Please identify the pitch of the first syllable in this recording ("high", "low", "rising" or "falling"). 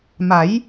rising